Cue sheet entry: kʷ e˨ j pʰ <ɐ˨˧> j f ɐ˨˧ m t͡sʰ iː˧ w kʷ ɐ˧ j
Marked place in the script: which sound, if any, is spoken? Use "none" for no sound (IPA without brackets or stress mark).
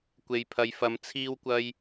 ɐ˨˧